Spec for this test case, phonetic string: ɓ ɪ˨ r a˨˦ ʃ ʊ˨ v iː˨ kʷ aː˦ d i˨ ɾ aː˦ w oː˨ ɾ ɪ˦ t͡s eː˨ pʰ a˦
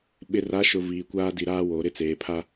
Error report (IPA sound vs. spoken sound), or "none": none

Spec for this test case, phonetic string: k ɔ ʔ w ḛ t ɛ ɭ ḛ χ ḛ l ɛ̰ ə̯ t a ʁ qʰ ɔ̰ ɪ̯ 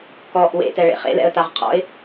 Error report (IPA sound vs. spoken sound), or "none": none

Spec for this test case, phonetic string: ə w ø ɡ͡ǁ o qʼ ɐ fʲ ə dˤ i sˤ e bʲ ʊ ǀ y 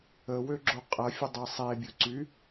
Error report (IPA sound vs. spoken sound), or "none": none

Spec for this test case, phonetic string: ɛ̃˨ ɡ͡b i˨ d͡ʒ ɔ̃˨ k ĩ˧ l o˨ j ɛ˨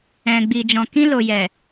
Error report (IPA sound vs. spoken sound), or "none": none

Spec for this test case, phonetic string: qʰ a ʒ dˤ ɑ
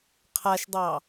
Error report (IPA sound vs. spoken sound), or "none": ʒ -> ʃ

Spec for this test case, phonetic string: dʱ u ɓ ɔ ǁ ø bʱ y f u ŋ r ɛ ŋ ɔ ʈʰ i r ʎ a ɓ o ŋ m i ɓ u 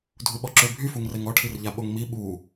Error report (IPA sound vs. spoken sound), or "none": none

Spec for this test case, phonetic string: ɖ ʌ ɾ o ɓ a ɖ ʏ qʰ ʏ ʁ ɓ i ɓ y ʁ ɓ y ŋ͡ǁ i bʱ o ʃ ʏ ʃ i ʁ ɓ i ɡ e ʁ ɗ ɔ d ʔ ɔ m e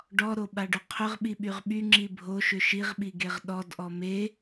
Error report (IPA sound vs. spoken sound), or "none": ʌ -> ɔ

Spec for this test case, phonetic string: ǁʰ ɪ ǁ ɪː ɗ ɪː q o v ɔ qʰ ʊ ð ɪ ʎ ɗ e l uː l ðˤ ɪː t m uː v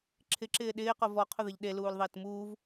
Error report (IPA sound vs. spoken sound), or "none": none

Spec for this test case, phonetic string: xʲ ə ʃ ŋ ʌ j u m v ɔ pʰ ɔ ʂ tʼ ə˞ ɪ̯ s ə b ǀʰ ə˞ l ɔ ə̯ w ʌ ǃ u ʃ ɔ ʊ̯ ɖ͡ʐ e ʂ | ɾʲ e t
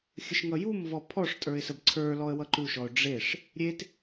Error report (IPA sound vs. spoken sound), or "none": none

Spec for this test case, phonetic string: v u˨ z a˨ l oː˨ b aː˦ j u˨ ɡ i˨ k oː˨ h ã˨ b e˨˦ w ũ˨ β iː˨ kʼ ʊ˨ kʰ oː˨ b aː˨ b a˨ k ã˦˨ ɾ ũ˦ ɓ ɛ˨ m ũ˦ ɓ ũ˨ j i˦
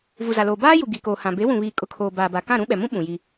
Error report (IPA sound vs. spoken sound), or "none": none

